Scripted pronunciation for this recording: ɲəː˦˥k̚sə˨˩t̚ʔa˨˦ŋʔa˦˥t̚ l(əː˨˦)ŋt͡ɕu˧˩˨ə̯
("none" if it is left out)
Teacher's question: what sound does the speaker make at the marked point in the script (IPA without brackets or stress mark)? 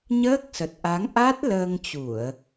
əː˧